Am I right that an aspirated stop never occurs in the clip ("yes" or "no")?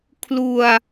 no